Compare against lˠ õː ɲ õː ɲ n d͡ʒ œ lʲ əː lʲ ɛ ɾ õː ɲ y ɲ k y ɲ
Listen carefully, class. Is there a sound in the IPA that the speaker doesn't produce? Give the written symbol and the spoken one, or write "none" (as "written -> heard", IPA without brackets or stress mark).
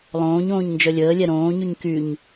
none